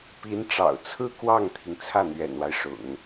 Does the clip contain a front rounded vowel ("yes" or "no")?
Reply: no